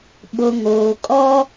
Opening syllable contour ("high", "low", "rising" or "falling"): low